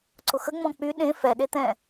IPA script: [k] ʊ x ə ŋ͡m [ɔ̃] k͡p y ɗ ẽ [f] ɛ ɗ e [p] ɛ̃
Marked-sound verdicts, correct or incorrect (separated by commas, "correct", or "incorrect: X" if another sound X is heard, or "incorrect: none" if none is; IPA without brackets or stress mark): incorrect: ǀ, correct, correct, incorrect: t̪